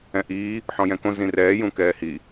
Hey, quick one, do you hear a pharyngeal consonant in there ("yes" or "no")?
yes